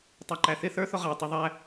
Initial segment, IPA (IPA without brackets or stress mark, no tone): tˤ